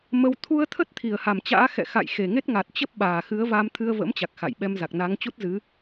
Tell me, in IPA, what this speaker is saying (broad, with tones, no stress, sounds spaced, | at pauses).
m ə˧ w t̪ʰ u˧ ə̯ t̪ʰ ə˦˥ t̚ t̪ʰ i˧˩ ə̯ h a˧˩ m t͡ɕ a̰ː˧˥ x ɛ̰˧˨ x a̰˧˨ j x e˨˩ ŋ e˦˥ t̚ ŋ a˨˩ t̚ t͡ɕ ə˦˥ p̚ ɓ aː˨˩ x ɨ˨˦ ə̯ v a˧ m t̪ʰ ɨ˧ ə̯ v ə̰˧˥ m t͡ɕ a˨˩ k̚ x a̰˧˨ j ɓ ɛ˧ m z a˨˩ k̚ n a˨˦ ŋ t͡ɕ u˦˥ t̚ z ɨ˨˦